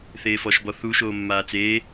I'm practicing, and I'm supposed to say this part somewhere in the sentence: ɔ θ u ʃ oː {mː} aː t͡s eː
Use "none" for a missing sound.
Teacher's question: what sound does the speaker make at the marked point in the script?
mː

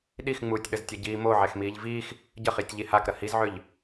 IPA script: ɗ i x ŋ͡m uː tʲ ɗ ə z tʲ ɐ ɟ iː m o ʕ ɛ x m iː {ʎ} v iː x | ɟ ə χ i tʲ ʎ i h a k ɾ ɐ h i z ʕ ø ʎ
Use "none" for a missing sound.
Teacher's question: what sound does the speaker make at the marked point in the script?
ʎ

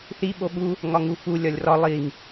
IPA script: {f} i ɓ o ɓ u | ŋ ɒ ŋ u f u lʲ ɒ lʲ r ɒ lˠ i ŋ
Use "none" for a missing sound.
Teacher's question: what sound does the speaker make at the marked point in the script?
θ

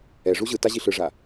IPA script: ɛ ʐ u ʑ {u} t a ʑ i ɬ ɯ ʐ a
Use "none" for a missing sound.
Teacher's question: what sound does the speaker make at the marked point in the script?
ɯ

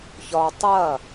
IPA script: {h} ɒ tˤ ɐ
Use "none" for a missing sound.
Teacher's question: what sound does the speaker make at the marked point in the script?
ç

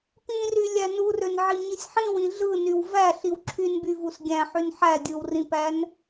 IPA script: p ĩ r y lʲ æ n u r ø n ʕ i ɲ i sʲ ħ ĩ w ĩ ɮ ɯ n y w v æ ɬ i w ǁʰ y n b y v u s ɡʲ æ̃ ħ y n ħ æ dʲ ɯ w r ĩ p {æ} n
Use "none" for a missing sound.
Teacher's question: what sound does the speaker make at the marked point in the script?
æ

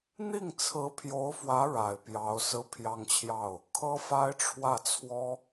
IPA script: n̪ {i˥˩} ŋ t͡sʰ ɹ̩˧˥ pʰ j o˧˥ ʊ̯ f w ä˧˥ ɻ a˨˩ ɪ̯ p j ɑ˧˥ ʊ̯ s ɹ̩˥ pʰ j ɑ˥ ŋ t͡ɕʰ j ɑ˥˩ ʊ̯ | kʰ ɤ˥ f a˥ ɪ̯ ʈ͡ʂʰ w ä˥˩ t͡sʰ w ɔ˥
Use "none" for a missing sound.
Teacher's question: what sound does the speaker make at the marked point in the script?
i˥˩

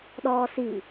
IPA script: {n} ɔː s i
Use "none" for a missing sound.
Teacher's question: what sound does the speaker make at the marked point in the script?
ɗ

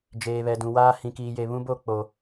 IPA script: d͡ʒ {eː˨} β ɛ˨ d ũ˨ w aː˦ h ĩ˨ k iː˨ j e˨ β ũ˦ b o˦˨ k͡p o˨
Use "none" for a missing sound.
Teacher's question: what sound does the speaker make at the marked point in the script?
eː˨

